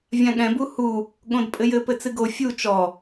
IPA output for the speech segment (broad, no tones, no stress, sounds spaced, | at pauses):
vʲ ã ɠ ɛ̃ b u h u | ɠ õ d pʼ ɘ j ɘ p ɘ t͡s ɨ ɡ o fʲ u t͡ʃ ɔ